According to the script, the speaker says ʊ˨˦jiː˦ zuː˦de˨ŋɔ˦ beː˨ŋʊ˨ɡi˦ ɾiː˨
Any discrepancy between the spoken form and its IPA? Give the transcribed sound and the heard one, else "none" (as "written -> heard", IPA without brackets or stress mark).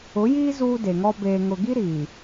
none